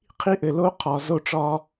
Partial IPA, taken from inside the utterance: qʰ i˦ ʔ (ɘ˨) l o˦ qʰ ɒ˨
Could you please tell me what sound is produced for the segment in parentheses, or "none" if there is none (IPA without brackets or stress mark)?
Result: ɘ˨